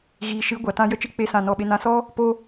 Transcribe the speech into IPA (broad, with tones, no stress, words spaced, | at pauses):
ɣiː˨ʃɨ˨˦ ɡʷa˨tã˧ jə˦t͡ʃɨ˦ k͡pe˦sã˦˨nɔ˦˨ɓe˦ nã˧sɔ˦ | po˦